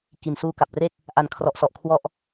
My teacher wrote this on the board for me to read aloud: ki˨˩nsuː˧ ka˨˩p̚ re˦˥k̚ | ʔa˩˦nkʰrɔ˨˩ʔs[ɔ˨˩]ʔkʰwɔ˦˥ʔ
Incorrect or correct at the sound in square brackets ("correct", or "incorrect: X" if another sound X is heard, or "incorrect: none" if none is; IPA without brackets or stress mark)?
correct